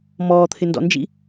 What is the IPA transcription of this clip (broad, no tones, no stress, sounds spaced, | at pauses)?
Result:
m ɔː t̪ʰ ɪ n d ɔ̰ n d͡ʒ ḭ